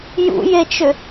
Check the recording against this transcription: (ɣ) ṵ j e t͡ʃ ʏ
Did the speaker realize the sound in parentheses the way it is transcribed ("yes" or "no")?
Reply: no